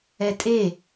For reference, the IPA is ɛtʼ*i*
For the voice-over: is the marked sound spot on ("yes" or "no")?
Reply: no